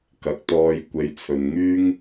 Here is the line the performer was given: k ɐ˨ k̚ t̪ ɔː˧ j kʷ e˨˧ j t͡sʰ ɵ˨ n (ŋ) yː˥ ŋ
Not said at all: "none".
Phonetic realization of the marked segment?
ŋ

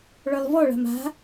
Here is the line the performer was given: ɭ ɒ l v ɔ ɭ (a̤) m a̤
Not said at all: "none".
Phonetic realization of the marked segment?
a̤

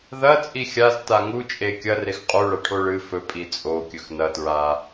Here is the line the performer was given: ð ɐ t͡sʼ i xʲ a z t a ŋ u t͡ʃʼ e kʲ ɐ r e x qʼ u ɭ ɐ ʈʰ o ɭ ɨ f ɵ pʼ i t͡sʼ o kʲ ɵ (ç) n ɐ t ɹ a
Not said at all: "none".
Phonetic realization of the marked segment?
x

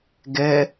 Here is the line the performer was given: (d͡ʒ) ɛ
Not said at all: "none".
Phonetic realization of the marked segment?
ɡ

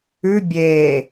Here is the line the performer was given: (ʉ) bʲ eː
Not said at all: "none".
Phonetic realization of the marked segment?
ʉ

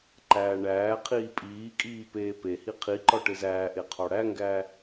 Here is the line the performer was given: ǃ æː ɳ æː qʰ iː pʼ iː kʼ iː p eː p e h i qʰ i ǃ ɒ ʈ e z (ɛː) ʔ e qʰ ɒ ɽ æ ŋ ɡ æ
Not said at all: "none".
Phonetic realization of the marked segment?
æː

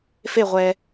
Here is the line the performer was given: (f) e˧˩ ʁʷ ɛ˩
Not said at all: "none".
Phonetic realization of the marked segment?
f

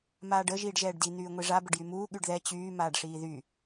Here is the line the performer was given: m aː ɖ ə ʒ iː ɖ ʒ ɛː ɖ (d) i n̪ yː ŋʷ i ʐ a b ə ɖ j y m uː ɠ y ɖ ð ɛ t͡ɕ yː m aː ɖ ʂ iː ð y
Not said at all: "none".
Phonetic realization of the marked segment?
d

